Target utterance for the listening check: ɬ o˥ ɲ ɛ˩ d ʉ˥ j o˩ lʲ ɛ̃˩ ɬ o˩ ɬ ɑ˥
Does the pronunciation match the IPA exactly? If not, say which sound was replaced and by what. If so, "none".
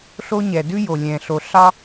none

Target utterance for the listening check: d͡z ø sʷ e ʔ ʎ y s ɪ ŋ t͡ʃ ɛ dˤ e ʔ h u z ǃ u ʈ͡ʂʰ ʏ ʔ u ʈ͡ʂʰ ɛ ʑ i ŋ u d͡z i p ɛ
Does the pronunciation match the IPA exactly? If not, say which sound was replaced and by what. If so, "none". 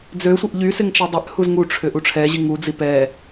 ǃ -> ŋ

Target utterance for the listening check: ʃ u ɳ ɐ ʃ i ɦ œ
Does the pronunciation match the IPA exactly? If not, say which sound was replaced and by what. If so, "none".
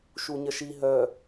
ɳ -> ɲ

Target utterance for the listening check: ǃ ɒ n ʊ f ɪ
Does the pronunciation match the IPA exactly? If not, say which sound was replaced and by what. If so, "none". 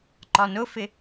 none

